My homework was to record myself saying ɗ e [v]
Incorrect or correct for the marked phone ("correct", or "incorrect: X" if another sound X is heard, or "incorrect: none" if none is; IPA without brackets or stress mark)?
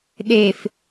incorrect: f